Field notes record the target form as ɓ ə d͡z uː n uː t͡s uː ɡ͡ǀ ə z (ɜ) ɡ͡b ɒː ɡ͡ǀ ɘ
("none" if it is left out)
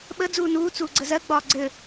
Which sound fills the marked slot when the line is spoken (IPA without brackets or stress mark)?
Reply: ɜ